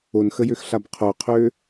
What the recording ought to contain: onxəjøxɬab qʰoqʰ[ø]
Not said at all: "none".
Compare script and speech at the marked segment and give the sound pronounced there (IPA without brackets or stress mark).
ø